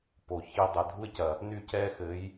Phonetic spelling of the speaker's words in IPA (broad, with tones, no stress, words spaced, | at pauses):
po˨çi˦dˤɐ˧ dʱu˦ɪ̯cɐ˨ | ny˦˨cɛ˦ xɘ˨˦j